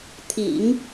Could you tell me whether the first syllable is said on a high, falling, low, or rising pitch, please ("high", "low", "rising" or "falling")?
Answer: low